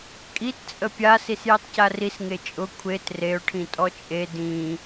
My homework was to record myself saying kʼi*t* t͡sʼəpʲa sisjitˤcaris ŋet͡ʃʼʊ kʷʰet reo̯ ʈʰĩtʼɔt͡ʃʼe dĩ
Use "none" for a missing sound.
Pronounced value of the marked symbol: t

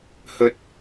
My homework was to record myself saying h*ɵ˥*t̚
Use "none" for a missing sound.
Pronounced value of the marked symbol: ɵ˥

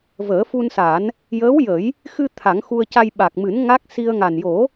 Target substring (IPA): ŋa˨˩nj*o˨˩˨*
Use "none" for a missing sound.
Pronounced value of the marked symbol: o˨˩˦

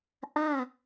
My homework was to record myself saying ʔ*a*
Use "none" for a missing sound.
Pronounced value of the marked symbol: a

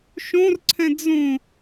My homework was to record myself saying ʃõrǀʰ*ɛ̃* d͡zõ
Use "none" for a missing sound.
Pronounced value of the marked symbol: ɛ̃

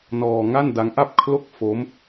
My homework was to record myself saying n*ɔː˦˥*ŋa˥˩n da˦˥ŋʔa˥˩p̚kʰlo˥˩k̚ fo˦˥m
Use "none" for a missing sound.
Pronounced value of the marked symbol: ɔː˧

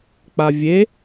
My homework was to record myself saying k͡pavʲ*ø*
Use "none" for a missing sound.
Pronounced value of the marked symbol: e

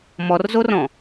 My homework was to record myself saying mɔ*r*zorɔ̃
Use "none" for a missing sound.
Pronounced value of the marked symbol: r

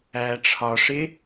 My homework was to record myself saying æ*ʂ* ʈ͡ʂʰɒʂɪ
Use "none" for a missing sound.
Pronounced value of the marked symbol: none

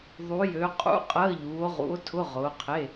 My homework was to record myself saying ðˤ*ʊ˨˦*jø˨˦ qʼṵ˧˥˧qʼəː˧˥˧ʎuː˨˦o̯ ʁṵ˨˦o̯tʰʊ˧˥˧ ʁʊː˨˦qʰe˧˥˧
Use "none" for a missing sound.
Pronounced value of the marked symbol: u˨˦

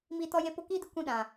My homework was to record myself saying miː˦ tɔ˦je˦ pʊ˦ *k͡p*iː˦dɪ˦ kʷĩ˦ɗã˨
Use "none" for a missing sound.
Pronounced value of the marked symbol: k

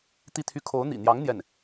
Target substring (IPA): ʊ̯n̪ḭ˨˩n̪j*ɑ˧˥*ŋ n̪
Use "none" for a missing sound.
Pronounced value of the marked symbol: ɑ˧˥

